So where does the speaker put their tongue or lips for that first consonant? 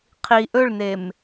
uvula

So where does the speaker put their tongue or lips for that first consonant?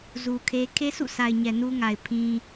tongue tip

